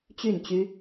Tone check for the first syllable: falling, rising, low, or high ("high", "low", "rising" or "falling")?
falling